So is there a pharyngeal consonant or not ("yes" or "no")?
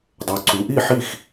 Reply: yes